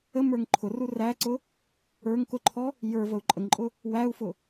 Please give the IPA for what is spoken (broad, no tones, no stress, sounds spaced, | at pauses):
ə m ə˞ ŋ ǃʰ ʊ r u r æ ǀ ʊ | ə˞ ŋ k ʊ ǃʰ ɔ | j ə˞ v ə u̯ ǃʼ ə ŋ ǃʼ ʊ | w æ u̯ f ʊ